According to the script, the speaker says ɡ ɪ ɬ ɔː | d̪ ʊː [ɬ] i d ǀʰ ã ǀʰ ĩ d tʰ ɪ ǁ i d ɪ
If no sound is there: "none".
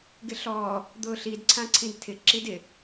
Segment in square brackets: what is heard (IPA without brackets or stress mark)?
ɬ